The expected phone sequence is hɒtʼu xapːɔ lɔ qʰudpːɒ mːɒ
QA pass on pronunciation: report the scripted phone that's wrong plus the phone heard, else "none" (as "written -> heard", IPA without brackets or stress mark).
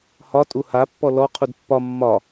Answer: x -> h